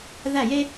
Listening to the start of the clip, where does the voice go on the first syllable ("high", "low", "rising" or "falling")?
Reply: falling